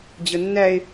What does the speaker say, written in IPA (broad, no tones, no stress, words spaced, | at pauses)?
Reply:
d͡ʑənːæe̯